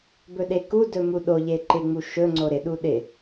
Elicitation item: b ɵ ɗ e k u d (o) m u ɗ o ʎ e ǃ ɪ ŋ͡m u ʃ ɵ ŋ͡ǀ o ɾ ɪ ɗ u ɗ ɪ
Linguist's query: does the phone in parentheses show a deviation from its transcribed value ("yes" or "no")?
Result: yes